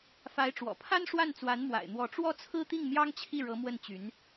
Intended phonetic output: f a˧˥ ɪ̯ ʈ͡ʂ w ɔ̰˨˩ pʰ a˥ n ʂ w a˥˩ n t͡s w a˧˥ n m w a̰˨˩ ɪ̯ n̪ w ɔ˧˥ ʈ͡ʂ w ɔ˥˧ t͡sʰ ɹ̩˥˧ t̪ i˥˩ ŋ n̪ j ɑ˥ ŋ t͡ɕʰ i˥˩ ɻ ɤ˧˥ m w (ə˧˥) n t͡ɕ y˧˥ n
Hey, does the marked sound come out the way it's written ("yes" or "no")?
no